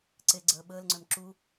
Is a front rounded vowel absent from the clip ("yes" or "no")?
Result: no